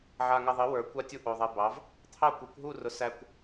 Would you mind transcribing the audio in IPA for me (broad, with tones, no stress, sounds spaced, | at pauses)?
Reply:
ʕ a˧ ŋ æ˧ ðˤ i˨˥ w ə˞˧ kʷ a˥˧ tʲ u˥˧ ʔ o˧ ðˤ ɛ˧ b ɑ˨˥ v | t̪ʰ ɑ˥˧ kʷ i˨˥ kʷ ɦ u˥˧ r ʊ˧ s æ˧ kʷ